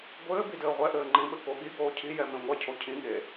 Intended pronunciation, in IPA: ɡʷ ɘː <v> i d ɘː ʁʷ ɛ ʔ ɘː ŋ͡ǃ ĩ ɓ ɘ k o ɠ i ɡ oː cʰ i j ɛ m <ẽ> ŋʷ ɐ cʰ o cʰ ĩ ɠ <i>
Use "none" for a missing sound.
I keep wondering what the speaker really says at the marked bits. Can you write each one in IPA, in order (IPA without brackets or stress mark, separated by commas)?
b, ẽ, e